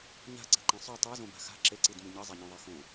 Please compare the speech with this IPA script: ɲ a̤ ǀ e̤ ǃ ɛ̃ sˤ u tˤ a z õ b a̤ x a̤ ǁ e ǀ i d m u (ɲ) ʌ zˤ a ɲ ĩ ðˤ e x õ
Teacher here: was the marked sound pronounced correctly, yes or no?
yes